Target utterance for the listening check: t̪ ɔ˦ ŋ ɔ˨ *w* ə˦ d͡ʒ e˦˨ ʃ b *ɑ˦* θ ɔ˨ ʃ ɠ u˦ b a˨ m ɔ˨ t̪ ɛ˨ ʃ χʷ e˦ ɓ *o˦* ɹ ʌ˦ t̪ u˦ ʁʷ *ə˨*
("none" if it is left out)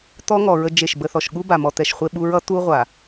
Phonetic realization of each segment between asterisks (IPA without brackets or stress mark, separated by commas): ɹ, ə˦, u˦, a˨